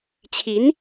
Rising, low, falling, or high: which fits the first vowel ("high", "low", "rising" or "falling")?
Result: rising